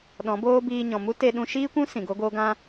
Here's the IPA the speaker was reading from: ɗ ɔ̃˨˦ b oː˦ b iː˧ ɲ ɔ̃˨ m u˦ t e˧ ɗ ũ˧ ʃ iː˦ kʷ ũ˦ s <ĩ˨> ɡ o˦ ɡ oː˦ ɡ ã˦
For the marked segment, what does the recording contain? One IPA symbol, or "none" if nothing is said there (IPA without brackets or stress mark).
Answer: ĩ˨